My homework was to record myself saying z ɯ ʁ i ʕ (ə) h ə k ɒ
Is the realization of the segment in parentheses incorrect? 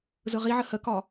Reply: no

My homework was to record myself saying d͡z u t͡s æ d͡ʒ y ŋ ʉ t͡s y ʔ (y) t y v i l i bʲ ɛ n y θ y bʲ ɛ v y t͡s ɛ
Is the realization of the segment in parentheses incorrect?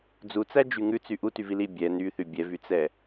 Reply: yes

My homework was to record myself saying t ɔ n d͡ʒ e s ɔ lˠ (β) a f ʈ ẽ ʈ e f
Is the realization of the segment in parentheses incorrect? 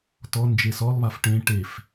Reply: no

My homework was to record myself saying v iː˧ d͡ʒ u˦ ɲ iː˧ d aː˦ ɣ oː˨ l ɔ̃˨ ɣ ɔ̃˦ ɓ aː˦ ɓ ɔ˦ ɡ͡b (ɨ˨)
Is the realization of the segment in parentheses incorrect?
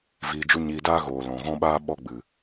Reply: no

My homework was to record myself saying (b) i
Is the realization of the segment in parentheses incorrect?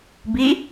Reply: no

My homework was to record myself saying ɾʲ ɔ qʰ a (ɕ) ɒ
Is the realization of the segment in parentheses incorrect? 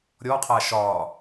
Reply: yes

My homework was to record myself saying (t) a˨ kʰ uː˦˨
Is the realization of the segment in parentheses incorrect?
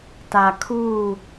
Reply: no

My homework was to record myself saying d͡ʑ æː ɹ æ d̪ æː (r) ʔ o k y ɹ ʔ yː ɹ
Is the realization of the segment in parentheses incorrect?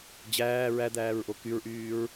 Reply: yes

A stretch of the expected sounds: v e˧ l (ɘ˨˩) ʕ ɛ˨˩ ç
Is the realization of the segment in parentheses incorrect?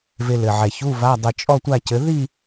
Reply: no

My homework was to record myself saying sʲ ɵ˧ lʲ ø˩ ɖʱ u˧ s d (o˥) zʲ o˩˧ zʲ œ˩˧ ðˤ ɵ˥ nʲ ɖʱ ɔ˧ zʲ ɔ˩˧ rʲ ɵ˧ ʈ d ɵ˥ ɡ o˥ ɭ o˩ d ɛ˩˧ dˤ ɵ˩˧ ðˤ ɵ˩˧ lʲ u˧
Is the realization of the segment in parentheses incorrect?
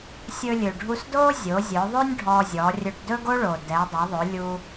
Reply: no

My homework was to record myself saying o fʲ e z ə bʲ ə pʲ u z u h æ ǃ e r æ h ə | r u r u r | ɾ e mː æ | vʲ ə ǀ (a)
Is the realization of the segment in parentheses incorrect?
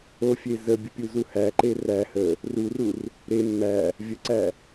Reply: yes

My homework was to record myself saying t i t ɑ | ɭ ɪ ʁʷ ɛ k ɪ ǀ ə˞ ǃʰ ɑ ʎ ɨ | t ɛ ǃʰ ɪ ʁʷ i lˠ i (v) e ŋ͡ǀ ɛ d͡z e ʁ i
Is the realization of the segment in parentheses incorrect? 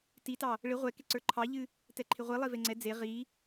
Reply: no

